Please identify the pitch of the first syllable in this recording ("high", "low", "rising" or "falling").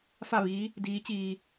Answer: falling